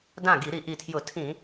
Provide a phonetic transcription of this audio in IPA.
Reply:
d ã˥˩ ɡ i˧˩˧ ɾ i˧˩˧ ʔ i˨˩ tʰ j ʊ˧˩˧ tʰ ĩ˧˩˧

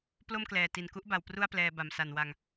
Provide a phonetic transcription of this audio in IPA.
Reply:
p l o˥˩ m k l ɛː˨˩ t i˨˩ n k u˦˥ ʔ b a˨˩ w p r u˥˩ a̯ p l ɛː˧ b a˨˩ m s a˨˩ n w a˧ ŋ

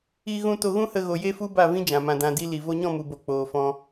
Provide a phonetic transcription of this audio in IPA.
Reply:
i˧ ɣ ũ˧ t o˧ ɣ ũ˦ h ə˧ ɣ o˨ j e˦ f u˦ b a˦˨ v ĩ˦ d͡ʒ ã˨ m ã˧ d ã˧ d i˧ l i˨ v o˧ ɲ ɔ̃˦˨ m u˨ b o˨ k͡p oː˨ f ɔ̃˧

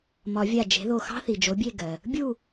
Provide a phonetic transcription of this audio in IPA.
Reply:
m ɒ˨˩˦ vʲ a˧˩ d͡ʒ e̤˩˥ ð o˧˩ x ɑ̤˥ θ i˩ d͡ʒ o˩˥ bʲ e˥˨ ɡ ɜ˩ | bʲ u˥˨

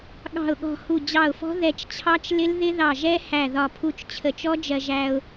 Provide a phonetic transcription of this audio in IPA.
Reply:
ɠ ɑ̤˧˩ ʊ̯ ɠ ɔ̤˧˩ h u˧˩ d͡ʑ ɑ˧˩ ʊ̯ f ɔ̤˦˥ ð ɛ˧˩ t͡ʃ t͡ɕʰ ɑ˦˥ t͡ʃ l ɪ˦˥ l ð ɪ˦˥ ð ɑ˧˩ ʒ ɛ˦˥ h æ˧˩ ð ɒ˧˩ pʰ u˧ t͡ʃ t͡ɕʰ ə˧˩ t͡ʃ ɔ˦˥ d͡ʒ ɜ˧ ʒ æ˧ ʊ̯

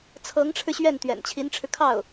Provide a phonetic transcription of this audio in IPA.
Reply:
t͡sʰ ɤ˧˥ ŋ ʈ͡ʂʰ ɻ̩˧ ɕ ɥ ɛ˥˩ n t̪ ɥ ɛ̰˨˩ n t͡ɕʰ i˧˥ n ʈ͡ʂʰ ɻ̩˧ kʰ ɑ˥˩ ʊ̯

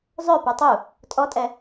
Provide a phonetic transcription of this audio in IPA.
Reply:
zˤ œ p ə˞ tˤ u | tʼ ɔ tʼ ɛ

